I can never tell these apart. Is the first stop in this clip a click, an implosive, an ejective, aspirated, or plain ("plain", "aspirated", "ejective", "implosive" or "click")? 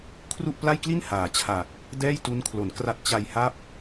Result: aspirated